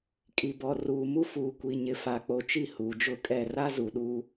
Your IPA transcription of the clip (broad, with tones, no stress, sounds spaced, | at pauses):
kʼ i˨ b ɔ˨ r uː˨ m u˦ f uː˨ kʷ i˨ ɲ ɪ˨ f a˨ k͡p o˨ t͡ʃ i˦˨ h uː˨ d͡ʒ ʊ˦˨ kʼ ɛ˦˨ r a˦ z u˨ ɗ uː˦